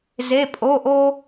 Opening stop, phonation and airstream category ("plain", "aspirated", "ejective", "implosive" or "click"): ejective